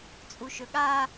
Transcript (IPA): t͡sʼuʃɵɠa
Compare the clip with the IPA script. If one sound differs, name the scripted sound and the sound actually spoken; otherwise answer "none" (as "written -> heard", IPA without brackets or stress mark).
none